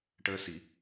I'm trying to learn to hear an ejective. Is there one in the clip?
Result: no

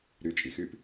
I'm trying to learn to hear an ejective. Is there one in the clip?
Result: yes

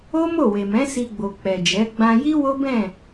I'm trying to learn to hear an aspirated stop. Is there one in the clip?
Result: no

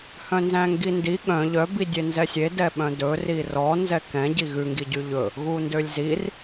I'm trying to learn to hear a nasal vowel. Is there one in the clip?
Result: yes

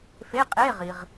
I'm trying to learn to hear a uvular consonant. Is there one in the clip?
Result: yes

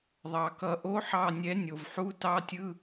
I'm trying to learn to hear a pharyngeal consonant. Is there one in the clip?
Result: yes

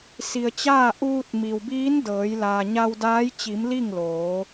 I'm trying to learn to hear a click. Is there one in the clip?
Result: no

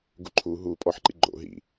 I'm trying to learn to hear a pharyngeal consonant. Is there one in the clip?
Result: yes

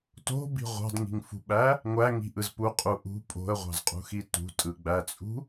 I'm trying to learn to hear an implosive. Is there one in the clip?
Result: yes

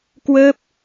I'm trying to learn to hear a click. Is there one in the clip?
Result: no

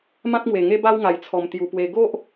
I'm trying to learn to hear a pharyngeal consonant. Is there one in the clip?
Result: no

